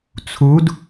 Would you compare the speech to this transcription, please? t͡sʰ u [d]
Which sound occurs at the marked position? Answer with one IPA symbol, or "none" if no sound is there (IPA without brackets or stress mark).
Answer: d